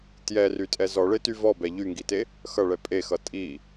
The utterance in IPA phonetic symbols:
t j ɛ r y tʼ ɛ z ɔ ɭ e t y v ɔ b ɛ ʎ y ŋ ɡ i t e | x ʌ ɭ ɛ pʼ e x ʌ tʼ i

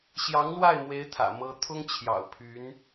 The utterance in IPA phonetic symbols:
ɕ j ɑ˧˥ ŋ l w a˥˩ ɪ̯ m w e˧˥ ɪ̯ t̪ʰ ä̰˨˩ m ɤ˥ t̪ʰ ʊ˥ ŋ t͡ɕʰ j ɑ̰˨˩ ʊ̯ pʰ y˧˥ n

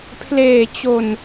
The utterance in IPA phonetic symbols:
pʰ l eː˨˩ t͡ɕ o˨˩ n

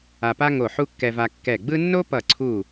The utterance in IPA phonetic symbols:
a˧ p a˥ ŋ o˧˩ ħ u˥ kː ɛ˧ v a˧ kː ɛ˧˩ ɡ͡b ɯ˥ nː o˥ p ʌ˧˩ ǀʰ u˧˩

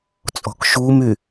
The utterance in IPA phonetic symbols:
t͡sʼ ɔ̤ k ʃ u m y

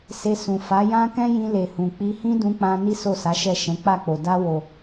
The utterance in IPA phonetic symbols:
s e˧ s ũ˨ f a˨˦ j ã˦ k ɛ̃˦ j ĩ˧ l e˨ h ũ˨ k͡p i˧ h ĩ˦ d ũ˧ k͡p ã˧ n i˦ s o˦˨ s a˨˦ ʃ ɛ˦˨ ʃ ɛ̃˨˦ k͡p a˦˨ k͡p o˨ d a˧ w o˨

